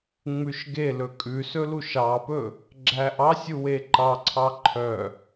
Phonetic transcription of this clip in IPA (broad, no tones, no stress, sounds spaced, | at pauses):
ŋ͡m ʉ ʃ ɡ e l ɵ kʼ ʉ s ɵ l u ʃ ɑ p ɵ | ɡ͡ǁ æ ʔ ɑ sʲ u w e ǃ ɑ ǀʰ ɑ ǃʰ œ